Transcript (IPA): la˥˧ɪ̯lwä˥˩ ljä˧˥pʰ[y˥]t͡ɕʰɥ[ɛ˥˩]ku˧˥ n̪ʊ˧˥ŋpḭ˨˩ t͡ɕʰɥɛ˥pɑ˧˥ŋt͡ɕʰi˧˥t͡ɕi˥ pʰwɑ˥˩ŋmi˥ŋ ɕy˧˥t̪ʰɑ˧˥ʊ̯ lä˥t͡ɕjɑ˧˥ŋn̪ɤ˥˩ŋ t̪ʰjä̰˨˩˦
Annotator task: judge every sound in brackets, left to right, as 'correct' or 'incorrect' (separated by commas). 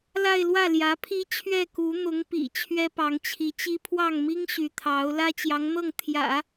incorrect, correct